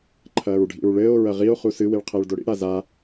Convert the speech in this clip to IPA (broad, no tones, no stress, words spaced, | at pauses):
ǃʰɐːɹɖʱḭɹɭɘːo̯ ɹɐʁio̯ χusɨ wiɭqʰɘːɭdoɽḭ ɽaza